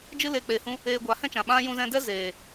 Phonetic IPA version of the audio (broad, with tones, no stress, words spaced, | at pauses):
d͡ʒɨ˦le˧ k͡pe˨hũ˧ | eː˧ɡʷa˨˦hɛ̃˦t͡ʃã˨ ɓã˦ jũ˧zɛ̃˧dɛ˦ zeː˨